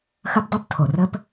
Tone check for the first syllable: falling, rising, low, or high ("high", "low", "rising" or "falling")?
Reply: high